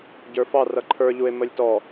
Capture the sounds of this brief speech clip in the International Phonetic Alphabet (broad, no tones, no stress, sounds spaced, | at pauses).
ɟ ə˞ f ɑ r ʌ ǃʰ ə˞ ʎ u e̯ m ə lʲ t ɔ